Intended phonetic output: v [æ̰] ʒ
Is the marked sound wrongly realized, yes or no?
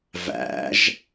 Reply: no